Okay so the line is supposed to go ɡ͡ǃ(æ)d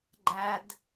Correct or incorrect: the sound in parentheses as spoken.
correct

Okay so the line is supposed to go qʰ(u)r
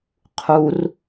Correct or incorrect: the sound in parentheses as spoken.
correct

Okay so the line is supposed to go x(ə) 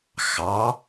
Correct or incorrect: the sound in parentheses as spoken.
incorrect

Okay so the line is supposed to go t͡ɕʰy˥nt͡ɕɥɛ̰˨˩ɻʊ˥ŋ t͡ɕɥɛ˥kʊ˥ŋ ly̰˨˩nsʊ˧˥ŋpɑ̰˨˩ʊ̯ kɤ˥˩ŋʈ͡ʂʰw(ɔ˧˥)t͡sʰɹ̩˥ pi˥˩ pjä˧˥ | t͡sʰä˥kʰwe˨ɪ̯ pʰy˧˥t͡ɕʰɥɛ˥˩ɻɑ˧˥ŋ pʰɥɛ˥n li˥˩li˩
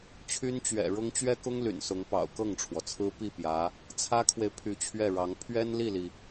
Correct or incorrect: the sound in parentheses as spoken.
incorrect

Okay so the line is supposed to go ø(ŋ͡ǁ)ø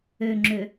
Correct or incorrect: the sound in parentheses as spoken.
correct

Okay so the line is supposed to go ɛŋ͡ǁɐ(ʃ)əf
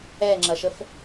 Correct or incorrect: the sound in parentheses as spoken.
correct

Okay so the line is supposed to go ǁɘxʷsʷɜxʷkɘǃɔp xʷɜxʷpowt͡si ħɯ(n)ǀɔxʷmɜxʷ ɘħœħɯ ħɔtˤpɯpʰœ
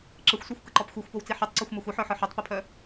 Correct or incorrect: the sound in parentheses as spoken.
incorrect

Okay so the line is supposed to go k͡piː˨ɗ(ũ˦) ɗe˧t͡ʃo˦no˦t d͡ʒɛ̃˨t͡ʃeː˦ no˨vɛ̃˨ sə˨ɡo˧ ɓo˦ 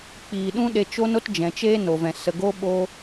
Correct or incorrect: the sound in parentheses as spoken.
correct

